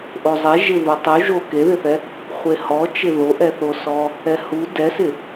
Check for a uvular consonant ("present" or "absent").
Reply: present